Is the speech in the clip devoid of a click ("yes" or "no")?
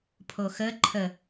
no